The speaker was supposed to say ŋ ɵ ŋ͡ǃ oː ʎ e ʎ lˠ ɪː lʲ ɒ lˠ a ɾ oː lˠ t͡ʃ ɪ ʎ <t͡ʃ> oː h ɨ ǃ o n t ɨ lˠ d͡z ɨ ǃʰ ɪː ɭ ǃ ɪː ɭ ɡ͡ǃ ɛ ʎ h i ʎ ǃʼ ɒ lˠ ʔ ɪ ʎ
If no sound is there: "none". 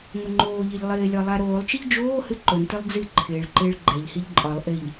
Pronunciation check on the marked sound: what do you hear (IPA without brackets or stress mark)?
d͡ʒ